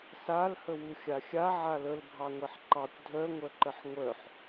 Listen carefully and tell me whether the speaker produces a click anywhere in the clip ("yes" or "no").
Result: yes